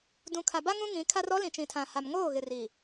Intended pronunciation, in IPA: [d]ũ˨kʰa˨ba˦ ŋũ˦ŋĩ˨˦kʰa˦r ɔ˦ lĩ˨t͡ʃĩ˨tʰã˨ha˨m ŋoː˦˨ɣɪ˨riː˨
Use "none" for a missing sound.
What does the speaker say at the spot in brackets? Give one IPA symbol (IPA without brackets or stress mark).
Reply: d